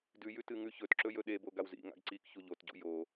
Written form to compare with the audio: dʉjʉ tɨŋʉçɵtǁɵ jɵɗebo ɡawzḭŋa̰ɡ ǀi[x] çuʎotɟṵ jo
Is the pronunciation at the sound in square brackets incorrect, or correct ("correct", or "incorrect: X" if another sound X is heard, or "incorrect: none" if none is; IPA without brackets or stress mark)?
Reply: incorrect: k